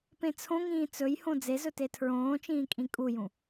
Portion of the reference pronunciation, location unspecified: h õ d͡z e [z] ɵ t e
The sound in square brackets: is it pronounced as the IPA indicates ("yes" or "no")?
yes